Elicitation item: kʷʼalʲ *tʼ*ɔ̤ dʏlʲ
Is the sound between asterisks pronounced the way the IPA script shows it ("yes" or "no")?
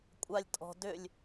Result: yes